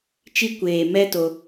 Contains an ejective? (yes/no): no